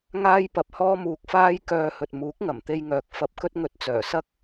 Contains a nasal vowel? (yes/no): no